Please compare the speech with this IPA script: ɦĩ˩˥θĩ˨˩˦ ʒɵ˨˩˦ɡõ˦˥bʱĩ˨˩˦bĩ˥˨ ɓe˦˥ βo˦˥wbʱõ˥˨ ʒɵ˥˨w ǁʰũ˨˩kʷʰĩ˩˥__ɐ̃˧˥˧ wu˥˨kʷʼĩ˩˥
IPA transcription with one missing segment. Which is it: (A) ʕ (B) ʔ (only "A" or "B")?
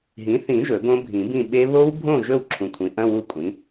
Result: B